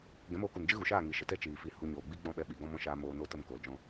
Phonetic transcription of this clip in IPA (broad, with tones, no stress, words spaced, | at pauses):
ɡɛ̃˨˦moː˧ku˨n d͡ʒɨ˦ɣu˨ʃaː˦˨ ŋi˨ʃə˨tɛ˦ t͡ʃiː˨fi˧hu˧ ɲoː˨ɡ͡bi˦ ɡ͡bɔ̃˦˨ɓɛ˧ ɓi˨ ɡɔ̃˧mɔ̃˧ʃaː˧ moː˧ noː˦tə˦˨m koː˨ld͡ʒɔ̃˧